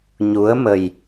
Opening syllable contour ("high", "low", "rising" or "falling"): rising